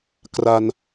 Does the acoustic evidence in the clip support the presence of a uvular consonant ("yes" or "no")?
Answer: no